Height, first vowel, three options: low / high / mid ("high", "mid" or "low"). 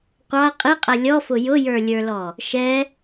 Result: low